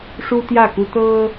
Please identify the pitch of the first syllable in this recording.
high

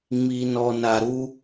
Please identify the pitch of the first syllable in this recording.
low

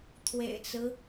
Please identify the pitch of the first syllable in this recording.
low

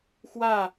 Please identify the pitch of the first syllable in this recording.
falling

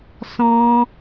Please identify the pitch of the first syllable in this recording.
high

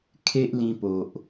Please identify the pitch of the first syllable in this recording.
high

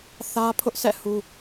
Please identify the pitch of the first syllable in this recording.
high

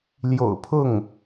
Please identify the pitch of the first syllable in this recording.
low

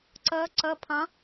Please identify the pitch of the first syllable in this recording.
rising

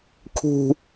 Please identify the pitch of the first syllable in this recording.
high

